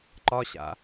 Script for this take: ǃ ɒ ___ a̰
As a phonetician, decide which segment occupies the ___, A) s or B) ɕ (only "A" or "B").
B